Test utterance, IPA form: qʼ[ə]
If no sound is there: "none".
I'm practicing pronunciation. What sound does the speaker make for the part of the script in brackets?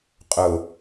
ʊ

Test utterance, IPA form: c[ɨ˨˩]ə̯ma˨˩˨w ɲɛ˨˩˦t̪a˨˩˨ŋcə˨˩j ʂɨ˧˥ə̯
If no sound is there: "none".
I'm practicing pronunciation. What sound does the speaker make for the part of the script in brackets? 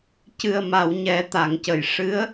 ɨ˨˩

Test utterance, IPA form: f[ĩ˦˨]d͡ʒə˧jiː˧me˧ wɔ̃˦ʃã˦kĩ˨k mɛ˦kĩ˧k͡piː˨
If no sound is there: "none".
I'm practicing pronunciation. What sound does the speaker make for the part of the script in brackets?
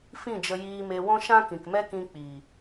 ĩ˦˨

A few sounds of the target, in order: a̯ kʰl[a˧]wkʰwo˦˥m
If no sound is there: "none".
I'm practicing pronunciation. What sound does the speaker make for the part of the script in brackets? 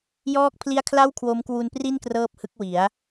a˥˩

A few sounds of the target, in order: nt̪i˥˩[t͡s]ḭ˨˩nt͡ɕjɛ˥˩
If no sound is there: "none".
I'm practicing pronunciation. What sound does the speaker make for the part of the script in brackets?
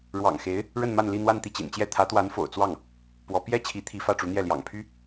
t͡ɕ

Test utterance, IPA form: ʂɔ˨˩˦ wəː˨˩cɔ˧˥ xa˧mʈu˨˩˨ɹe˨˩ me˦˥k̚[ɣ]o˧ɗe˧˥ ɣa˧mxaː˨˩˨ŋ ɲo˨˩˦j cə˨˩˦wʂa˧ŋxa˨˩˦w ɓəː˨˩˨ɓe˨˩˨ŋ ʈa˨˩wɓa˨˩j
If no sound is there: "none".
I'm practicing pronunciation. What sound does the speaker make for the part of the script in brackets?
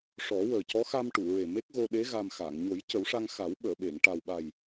ɣ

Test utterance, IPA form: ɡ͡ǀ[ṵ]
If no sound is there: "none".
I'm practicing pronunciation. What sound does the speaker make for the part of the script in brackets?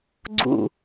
ṵ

